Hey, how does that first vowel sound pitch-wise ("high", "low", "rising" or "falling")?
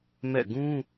falling